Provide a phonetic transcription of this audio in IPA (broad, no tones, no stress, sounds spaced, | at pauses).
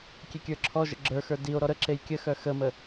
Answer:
kʲ e kʲ ə˞ ǁʰ ɔ ʒ ə̰ ɡ͡ǁ ə˞ x ə˞ d i o̯ ɾ ɔ ɾ ə ǁ e j kʲ ə x œ x ə m ə